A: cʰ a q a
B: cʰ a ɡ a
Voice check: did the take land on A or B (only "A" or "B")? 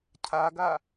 B